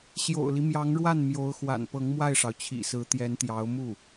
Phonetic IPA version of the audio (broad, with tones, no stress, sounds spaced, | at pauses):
ɕ j o̰˨˩ ʊ̯ l i˦ m j ɑ˧˥ ŋ ɻ w a˥˩ n m j o˧˥ ʊ̯ x w a̰˨˩ n p ɤ˧˥ ŋ m w a˥˩ ɪ̯ ʂ ɑ˩ ʊ̯ t͡ɕʰ ḭ˨˩ s ɹ̩˧˥ t̪ j ɛ˧˥ n t̪ j ɑ˧˥ ʊ̯ m u˥˩